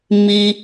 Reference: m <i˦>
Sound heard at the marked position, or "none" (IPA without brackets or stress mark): i˦